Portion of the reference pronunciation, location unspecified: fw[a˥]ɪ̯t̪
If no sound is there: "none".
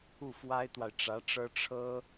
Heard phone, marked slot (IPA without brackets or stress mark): a˥